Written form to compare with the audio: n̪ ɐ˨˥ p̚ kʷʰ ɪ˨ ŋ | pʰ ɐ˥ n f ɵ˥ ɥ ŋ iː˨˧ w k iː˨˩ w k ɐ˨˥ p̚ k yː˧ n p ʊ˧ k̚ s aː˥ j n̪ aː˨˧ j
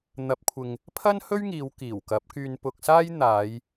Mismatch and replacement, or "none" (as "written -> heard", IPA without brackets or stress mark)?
f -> h